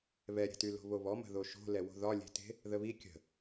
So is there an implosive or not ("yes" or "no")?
no